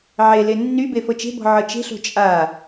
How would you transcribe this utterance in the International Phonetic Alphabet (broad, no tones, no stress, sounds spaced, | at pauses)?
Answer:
ʕ e l e nː y b e f ɤ t͡ʃ e̤ b ɔ̤ ʕ ɤ t͡ʃ e̤ ɬ o̤ t͡ʃʼ a